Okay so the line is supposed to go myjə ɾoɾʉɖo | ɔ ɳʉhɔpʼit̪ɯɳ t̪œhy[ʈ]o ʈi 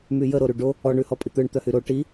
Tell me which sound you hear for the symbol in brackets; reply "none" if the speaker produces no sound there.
ɾ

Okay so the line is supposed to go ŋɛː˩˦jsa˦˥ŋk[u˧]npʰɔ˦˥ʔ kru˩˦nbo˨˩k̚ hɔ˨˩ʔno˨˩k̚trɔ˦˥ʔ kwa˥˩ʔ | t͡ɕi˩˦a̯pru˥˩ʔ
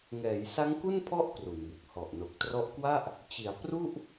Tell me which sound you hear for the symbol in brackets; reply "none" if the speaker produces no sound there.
u˥˩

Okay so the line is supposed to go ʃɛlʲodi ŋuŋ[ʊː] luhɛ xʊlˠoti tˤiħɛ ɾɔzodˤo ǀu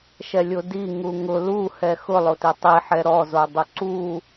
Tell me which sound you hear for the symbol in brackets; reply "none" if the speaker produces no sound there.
ʊ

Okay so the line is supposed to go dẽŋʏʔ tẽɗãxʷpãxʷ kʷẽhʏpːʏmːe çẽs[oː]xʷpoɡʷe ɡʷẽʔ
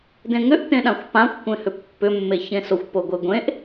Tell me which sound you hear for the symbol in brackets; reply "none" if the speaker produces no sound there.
o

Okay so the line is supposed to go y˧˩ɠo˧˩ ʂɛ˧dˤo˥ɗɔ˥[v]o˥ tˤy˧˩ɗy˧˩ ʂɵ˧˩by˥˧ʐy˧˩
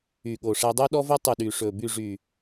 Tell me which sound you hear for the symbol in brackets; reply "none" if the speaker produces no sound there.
v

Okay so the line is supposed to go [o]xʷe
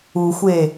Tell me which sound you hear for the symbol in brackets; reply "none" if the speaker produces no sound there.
u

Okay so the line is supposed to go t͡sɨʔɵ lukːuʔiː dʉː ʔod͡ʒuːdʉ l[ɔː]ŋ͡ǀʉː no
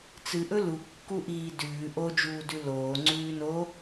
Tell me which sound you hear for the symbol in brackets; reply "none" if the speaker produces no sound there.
oː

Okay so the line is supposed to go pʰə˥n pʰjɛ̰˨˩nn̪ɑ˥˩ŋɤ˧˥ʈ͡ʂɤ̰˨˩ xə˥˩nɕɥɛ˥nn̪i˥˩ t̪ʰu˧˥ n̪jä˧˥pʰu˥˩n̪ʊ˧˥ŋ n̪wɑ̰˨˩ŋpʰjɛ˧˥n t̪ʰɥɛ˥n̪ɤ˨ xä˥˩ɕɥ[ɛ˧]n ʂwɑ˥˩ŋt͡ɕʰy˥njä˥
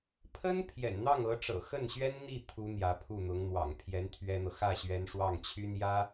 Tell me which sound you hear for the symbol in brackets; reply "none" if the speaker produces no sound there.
ɛ˧˥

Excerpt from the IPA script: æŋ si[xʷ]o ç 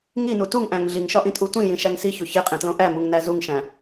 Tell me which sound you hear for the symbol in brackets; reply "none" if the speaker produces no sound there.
ç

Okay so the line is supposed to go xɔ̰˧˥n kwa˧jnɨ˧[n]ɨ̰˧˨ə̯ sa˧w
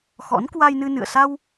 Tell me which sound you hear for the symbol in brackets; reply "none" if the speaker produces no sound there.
n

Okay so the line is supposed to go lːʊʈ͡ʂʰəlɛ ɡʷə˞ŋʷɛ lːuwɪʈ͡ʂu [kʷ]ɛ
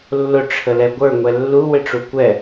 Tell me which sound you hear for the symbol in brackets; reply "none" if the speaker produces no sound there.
kʷ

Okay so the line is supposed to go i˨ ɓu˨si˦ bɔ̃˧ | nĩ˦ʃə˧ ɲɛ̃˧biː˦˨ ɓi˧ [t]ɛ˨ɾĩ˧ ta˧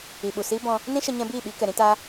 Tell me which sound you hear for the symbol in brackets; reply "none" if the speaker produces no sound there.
k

